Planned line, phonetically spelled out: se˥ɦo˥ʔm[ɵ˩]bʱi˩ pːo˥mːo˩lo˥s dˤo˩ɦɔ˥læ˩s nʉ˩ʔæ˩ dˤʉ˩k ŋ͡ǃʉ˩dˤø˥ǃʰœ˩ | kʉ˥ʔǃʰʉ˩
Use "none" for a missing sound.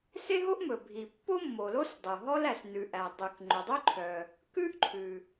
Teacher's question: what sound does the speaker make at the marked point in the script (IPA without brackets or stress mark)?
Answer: ɵ˩